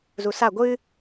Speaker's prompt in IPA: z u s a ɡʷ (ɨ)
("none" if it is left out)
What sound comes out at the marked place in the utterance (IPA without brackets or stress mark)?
ɨ